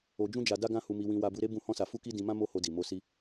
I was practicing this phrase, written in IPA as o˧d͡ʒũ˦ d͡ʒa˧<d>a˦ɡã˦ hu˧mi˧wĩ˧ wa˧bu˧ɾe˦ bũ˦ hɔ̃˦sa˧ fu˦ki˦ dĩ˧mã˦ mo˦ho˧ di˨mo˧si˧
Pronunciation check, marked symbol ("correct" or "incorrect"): correct